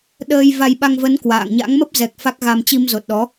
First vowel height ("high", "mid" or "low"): mid